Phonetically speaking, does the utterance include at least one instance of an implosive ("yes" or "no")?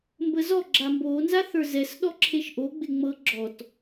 yes